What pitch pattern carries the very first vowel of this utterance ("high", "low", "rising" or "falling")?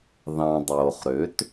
low